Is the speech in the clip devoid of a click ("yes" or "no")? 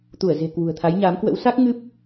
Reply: yes